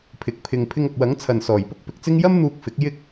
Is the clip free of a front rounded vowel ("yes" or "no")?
yes